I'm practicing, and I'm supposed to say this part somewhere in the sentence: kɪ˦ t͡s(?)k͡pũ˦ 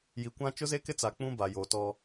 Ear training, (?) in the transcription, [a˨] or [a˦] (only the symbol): a˨